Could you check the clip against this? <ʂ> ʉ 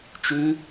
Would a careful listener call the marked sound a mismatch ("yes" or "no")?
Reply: yes